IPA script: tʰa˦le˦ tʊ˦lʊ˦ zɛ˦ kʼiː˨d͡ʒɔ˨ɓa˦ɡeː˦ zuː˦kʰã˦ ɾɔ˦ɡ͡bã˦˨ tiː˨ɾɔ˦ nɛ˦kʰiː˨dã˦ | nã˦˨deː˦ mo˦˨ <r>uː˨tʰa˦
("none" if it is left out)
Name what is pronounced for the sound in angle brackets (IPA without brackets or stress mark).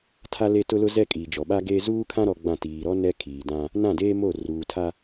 r